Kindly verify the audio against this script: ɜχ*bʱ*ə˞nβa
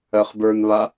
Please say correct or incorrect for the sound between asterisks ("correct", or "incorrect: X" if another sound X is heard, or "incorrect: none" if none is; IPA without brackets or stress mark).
incorrect: b